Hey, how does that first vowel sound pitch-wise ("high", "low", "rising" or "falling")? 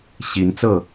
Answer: rising